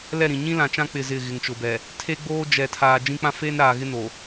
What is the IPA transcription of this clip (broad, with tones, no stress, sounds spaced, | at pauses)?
l ɛ˦˨ ɾ ĩ˨ ɲ ĩ˦ l ã˨ t͡ʃ ã˦ k͡p ɪ˦˨ z ɪ˦˨ ɣ ɪ˨ ŋ t͡ʃ ʊ˨ b ɛ˨ | tʰ e˦ ɡ͡b oː˦ d͡ʒ ɛ˨ tʰ aː˨ d͡ʒ ĩ˦ k͡p ã˦ f eː˦ n ɾ aː˨ ɣ ɪ˦ n o˨